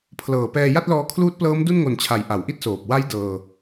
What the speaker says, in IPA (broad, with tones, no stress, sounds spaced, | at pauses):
pʰ l ɤː˨˩ p ɛː˧ j a˥˩ t̚ l ɔː˧ kʰ l uː˦˥ t̚ p l ɤː˦˥ m d u˥˩ n ŋ o˨˩ n t͡ɕʰ a˩˦ j ʔ a˩˦ w ʔ i˥˩ t̚ s oː˨˩ p̚ w a˦˥ j d ɤː˧